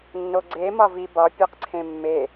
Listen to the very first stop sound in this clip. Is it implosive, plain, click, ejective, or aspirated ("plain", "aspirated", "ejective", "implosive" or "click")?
click